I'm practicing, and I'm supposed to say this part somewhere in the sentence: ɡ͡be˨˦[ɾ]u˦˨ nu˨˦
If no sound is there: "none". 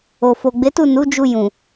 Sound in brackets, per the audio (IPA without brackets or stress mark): t